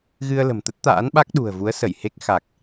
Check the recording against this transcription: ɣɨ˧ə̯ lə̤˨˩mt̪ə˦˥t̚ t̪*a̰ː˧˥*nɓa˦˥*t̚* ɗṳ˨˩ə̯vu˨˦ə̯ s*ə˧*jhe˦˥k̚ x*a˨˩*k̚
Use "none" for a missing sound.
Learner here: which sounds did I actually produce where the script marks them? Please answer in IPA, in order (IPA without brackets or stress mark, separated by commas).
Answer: a̰ː˧˥, k̚, ə˧˩, a˨˩